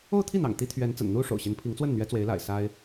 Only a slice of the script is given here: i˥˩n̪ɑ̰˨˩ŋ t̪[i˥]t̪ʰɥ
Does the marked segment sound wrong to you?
yes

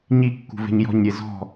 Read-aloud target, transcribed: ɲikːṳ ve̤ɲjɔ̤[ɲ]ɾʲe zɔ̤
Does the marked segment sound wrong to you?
no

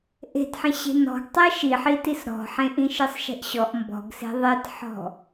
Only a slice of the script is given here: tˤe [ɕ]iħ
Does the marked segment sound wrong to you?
yes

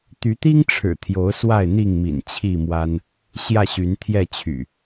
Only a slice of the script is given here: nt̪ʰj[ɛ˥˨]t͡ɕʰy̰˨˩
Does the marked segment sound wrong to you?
no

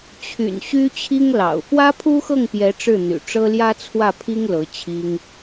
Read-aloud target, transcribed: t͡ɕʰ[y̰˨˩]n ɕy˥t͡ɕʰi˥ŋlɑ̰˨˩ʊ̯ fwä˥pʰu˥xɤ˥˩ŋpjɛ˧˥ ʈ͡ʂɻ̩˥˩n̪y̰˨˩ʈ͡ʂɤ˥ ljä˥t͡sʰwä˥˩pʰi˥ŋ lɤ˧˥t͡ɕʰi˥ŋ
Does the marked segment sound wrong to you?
no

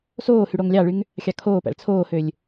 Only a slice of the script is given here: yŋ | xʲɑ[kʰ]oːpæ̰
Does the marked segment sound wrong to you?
no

